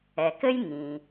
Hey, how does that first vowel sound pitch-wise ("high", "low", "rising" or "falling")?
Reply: low